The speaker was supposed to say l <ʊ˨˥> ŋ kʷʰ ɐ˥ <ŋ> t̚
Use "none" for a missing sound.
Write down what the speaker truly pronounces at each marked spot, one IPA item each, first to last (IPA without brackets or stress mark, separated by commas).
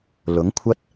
ʊ˨˥, none